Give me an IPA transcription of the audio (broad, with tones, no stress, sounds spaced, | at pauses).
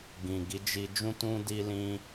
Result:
ɡ ĩ˨ ɡ i˨˦ d͡ʒ i˧ d͡ʒ ũ˦ t ũ˦ d i˦ l ĩ˦